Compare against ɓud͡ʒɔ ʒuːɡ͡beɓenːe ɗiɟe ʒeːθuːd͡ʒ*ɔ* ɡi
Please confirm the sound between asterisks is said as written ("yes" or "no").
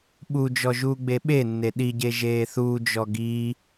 yes